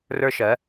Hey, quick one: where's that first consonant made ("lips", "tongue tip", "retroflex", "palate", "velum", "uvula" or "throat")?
tongue tip